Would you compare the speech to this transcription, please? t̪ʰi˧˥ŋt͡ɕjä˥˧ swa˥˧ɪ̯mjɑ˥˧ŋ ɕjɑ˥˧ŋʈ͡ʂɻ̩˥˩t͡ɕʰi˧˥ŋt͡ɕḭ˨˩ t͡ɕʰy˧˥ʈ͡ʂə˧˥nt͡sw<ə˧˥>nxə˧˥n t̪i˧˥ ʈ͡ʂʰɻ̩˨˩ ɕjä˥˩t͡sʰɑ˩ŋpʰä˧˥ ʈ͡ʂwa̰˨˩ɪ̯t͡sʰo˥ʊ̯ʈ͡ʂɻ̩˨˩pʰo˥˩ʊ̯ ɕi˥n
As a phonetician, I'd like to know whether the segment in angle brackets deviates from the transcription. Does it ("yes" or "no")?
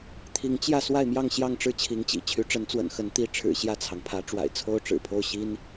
yes